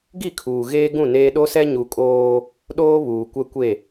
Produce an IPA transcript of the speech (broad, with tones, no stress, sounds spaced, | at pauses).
ɡ i˦˨ kʰ uː˨ ɣ eː˦ ɡ ũ˦˨ n eː˦ ɗ o˦ s ɛ˦ ɲ u˨ kʼ oː˦ | ɗ oː˦ β uː˨ kʷ ɛ˦ kʷ e˦˨